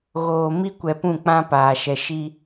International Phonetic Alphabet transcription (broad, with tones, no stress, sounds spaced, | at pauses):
ɣ oː˨ m i˦ kʷ ɛ˨ p ũ˦˨ k͡p ã˦ p aː˨ ʃ ɛ˨ ʃ i˦